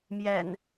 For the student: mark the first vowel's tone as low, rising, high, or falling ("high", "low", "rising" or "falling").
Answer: low